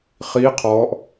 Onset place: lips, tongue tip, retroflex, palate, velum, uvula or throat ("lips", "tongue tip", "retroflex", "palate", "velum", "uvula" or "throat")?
uvula